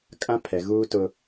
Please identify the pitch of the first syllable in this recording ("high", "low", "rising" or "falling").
high